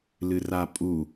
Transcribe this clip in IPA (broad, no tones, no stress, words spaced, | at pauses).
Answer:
lɨrapʼu